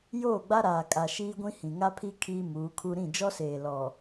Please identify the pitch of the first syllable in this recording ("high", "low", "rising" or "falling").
falling